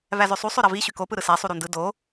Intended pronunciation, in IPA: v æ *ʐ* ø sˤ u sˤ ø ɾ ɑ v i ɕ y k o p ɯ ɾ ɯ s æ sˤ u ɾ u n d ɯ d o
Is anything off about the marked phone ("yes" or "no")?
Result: yes